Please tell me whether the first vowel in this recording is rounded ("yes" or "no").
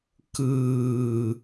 no